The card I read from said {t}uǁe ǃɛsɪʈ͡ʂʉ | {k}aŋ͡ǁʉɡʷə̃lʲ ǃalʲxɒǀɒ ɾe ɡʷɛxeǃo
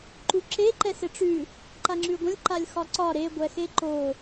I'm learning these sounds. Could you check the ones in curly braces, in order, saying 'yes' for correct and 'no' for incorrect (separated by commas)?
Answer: no, no